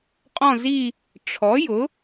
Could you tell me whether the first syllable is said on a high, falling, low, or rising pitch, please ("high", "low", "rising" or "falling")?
falling